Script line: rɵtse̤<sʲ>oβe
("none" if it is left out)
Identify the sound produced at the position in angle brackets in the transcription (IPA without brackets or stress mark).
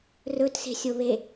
sʲ